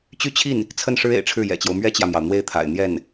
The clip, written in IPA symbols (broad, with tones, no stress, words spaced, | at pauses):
t͡ɕy˥˧t͡ɕʰi˥˩n | t͡sʰə˥˩nʂɻ̩˥ ḛ˨˩ɪ̯ʈ͡ʂʰɻ̩˥˩jɛ̰˨˩t͡ɕjo˦ʊ̯ mɥɛ˥t͡ɕjä˨mjɑ˩ʊ̯ n̪we˥˩ɪ̯t̪ʰa̰˨˩ɪ̯n̪jɛ˥˩n